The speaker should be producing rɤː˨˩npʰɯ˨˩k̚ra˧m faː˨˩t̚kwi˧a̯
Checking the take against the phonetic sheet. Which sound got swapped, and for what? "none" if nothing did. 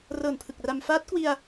aː˨˩ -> aː˦˥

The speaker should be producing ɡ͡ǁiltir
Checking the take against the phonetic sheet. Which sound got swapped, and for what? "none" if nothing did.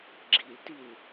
r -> l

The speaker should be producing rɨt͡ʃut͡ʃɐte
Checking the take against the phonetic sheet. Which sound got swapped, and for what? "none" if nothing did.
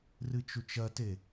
none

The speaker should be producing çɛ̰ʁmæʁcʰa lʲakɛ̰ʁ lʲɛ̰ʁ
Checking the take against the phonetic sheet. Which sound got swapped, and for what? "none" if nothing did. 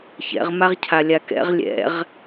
æ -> a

